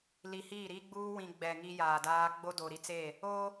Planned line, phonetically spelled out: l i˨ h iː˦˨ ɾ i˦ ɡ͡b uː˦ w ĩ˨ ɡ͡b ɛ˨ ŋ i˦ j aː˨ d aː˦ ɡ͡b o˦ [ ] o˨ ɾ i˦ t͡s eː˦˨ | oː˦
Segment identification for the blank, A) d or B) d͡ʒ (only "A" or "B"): A